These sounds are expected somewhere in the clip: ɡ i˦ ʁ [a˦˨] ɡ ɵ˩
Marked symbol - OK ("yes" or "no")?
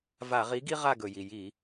yes